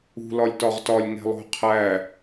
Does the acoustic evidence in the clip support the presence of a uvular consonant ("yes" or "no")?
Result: yes